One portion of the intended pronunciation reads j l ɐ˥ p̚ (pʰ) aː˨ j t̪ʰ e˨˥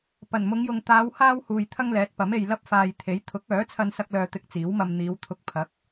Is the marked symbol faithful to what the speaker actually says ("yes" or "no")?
no